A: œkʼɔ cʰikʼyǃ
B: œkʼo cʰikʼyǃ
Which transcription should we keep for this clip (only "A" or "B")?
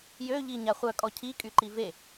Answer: A